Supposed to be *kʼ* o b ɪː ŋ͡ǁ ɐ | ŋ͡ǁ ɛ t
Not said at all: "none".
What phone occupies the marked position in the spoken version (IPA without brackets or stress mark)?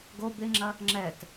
ɡ